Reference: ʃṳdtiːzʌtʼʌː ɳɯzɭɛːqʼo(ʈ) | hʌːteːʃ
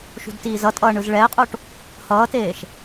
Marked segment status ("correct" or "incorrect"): correct